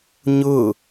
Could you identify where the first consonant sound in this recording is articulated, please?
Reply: palatal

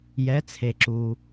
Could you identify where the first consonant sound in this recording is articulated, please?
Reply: palatal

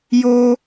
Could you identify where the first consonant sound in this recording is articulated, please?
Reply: palatal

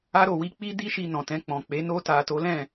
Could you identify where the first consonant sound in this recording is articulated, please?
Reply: alveolar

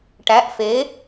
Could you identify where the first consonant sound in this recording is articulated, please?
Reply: retroflex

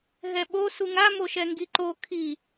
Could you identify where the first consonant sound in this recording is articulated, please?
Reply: glottal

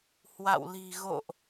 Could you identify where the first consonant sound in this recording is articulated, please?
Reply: glottal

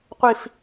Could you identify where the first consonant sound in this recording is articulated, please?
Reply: uvular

